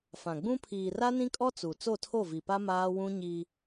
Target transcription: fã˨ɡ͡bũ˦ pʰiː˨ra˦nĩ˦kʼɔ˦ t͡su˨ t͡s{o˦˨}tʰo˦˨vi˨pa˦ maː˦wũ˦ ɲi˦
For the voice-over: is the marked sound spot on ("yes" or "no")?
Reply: yes